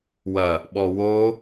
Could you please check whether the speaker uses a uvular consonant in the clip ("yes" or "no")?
no